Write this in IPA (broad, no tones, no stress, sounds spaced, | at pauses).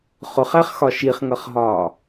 χ ʊ χ æ χ x ɒ ʃ i χ ŋ ʌ χ ɦ ɒː